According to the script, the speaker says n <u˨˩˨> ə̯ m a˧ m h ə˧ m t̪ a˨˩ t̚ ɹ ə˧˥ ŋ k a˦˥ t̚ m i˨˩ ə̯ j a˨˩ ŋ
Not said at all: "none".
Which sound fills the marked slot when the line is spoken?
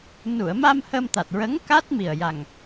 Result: u˨˩˨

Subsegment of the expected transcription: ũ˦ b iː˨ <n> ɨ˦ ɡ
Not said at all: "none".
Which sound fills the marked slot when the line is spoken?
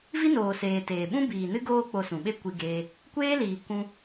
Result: n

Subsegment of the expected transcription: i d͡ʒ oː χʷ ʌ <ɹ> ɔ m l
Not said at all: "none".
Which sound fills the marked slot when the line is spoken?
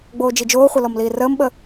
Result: l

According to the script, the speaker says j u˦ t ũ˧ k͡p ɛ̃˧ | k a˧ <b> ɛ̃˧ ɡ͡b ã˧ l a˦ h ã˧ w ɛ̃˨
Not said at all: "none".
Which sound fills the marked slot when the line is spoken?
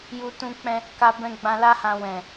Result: b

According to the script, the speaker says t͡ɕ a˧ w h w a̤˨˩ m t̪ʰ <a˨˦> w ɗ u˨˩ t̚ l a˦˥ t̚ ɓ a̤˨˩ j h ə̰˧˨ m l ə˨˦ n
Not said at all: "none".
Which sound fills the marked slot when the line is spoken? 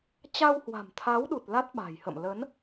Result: a˨˦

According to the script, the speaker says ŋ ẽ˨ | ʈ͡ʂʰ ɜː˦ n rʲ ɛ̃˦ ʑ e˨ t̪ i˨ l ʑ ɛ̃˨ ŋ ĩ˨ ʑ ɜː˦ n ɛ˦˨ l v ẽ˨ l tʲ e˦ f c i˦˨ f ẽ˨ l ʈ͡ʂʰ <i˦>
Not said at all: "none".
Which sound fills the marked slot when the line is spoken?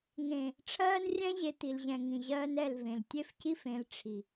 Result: i˨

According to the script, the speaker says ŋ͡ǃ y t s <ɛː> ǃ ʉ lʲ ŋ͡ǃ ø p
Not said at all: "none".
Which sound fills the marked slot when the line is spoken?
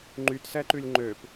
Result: ɛ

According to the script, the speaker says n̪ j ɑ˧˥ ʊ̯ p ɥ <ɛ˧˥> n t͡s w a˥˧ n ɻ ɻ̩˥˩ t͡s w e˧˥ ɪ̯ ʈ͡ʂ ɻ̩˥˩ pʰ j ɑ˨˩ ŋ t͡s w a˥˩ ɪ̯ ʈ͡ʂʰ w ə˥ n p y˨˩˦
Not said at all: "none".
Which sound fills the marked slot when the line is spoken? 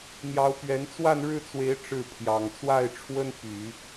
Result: ɛ˧˥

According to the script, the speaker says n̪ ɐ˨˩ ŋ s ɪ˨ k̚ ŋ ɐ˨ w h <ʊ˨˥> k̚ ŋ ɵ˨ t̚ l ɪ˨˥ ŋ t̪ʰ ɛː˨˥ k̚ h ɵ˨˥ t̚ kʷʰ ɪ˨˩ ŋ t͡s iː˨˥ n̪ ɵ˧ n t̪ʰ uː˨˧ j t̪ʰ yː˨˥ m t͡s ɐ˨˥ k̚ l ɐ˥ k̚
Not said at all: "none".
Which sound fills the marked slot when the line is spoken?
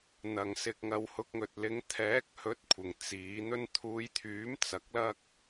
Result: ʊ˨˥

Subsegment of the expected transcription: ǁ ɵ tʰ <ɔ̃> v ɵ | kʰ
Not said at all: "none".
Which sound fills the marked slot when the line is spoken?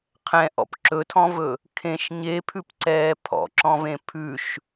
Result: ɔ̃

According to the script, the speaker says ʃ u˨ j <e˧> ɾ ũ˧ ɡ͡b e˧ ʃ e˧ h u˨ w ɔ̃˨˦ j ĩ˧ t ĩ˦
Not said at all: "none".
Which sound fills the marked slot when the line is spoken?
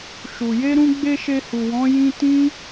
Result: e˧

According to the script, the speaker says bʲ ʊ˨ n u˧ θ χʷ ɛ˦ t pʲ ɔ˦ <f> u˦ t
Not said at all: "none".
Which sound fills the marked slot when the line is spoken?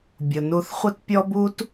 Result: b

